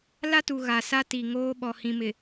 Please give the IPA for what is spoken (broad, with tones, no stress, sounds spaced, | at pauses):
l a˦ t u˨ ɣ a˨ s a˦ t i˨ ŋ oː˦ ɓ ɔ˨ h ĩ˨ m ɪ˨